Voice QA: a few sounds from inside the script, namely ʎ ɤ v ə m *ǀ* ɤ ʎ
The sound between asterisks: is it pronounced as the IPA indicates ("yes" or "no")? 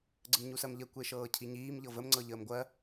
no